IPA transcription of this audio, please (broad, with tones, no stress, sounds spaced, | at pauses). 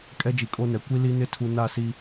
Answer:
kʼ ɛ˦ d͡ʒ i˨ kʼ o˦ n ɛ˨ kʷ i˦ l i˦ n ɪ˦ tʰ u˨ n a˦˨ s i˦